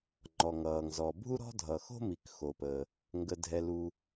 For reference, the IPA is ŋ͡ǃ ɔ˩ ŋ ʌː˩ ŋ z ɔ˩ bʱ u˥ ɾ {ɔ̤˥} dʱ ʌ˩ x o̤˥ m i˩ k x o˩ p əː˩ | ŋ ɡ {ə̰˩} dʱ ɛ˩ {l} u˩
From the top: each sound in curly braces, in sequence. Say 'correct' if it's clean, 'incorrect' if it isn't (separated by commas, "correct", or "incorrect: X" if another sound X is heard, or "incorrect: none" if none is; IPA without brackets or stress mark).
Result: correct, incorrect: ə˩, correct